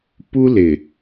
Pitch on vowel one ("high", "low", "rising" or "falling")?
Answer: high